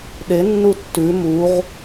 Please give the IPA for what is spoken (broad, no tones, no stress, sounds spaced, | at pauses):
ɗ e nː u tː ʉ m u ʁ